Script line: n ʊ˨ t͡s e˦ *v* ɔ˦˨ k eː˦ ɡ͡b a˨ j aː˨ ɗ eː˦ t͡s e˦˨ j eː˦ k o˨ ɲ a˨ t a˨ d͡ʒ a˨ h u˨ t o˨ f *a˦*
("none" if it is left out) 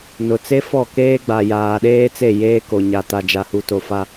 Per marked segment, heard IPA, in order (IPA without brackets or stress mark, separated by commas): f, a˦